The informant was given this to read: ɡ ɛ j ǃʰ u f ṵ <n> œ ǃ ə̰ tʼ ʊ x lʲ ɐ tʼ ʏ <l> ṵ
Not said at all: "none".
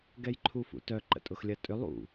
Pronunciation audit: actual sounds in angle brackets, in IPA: t, lˠ

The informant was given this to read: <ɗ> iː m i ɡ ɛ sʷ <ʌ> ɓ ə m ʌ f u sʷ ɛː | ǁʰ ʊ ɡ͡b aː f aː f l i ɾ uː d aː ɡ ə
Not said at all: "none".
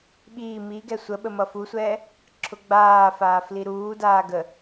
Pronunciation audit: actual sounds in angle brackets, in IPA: ɓ, ə

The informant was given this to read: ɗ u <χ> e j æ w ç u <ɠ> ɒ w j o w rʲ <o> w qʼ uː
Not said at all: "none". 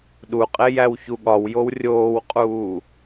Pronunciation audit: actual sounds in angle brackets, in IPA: qʼ, ɠ, oː

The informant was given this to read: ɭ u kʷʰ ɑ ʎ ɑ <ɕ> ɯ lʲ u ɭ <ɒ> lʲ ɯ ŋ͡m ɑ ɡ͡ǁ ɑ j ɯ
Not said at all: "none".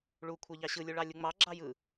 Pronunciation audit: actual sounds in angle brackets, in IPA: ɕ, ɑ

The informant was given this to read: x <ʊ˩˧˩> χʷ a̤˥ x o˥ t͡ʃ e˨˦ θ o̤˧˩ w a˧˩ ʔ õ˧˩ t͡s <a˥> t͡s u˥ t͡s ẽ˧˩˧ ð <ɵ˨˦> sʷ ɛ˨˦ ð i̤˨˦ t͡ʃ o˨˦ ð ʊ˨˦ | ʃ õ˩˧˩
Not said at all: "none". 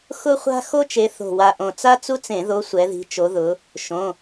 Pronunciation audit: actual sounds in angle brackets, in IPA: ʊ˥, a˥, o˨˦

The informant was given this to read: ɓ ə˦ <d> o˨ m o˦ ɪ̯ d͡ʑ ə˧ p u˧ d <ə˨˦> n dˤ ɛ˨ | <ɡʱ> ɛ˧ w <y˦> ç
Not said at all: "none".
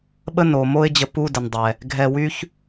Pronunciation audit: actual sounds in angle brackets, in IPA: n, ə˨, ɡʱ, y˦

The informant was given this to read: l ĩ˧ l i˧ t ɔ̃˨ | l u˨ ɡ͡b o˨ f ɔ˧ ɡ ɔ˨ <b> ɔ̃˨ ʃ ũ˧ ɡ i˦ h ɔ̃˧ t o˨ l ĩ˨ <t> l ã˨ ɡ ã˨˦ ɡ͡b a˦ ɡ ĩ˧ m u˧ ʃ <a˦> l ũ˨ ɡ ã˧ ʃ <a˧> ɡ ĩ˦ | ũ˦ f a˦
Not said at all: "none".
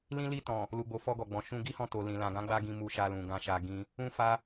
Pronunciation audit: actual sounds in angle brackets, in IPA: ɡ͡b, none, a˧, a˧

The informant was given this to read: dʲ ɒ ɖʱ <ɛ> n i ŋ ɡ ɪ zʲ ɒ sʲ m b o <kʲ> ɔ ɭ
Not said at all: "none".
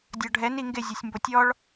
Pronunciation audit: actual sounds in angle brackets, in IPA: ɛ, tʲ

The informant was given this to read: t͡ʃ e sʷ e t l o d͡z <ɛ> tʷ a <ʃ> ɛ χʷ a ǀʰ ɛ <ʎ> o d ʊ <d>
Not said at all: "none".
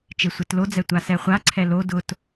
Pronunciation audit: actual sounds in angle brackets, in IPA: ɛ, s, l, t

